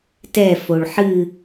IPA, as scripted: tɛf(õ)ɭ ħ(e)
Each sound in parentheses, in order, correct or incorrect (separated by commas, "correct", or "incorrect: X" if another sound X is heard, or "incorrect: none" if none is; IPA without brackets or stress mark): incorrect: o, incorrect: ɨ